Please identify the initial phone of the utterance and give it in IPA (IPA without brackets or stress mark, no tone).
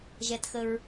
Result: ʒ